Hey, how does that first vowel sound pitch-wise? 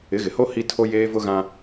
rising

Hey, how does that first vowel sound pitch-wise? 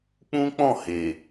high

